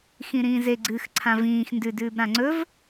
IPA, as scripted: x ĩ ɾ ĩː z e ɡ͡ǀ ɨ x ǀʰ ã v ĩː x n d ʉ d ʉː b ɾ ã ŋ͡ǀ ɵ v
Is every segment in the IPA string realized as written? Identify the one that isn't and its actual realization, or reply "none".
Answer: none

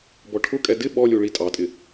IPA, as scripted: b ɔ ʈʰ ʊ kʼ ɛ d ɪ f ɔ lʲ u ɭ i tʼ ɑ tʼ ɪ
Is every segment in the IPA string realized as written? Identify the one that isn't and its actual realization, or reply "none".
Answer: f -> ɓ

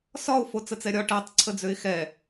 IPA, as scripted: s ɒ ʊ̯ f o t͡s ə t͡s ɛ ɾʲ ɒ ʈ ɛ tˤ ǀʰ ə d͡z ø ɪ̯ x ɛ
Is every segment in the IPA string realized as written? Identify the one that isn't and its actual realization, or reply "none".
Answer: none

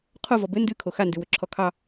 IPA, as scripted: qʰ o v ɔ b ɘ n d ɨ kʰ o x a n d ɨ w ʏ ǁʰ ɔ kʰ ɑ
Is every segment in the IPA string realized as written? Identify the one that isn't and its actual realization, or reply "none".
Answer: none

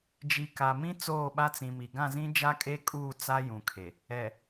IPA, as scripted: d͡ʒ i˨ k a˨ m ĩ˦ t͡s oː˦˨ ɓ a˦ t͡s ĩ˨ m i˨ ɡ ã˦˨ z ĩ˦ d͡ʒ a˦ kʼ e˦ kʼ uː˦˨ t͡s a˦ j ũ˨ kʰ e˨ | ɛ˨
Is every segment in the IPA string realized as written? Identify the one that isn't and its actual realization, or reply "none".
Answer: none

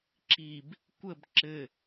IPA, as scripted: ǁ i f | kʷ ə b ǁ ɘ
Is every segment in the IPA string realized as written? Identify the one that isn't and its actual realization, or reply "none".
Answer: f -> b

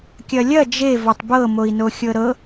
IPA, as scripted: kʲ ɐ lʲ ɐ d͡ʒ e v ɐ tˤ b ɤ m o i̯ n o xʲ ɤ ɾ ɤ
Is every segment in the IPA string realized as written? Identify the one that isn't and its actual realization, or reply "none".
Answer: none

